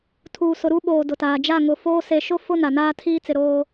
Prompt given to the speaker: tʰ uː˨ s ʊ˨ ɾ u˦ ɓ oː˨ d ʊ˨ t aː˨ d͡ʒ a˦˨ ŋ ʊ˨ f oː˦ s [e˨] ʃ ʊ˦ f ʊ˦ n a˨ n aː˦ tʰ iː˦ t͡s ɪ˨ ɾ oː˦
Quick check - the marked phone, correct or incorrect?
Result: correct